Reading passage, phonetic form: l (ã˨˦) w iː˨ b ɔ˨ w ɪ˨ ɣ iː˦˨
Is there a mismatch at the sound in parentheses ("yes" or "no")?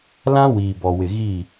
yes